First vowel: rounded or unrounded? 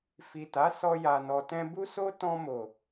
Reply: unrounded